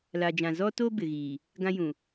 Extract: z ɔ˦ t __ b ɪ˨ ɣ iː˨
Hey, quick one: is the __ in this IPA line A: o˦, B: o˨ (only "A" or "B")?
A